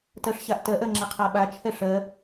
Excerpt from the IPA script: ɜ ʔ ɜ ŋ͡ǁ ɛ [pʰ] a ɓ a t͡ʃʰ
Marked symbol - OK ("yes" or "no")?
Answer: no